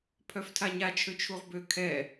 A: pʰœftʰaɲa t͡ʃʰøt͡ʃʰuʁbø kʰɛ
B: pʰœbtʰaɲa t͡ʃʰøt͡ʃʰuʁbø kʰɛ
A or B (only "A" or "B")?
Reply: A